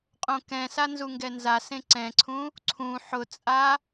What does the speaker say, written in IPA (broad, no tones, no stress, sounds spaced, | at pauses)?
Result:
qʼ õ k ɛ̃ s a n z u ŋ ɡ ɛ n z a s ẽ ǀ ɛ̃ ǀʰ ũ | ǀʰ ũ ħ ʊ t͡sʼ a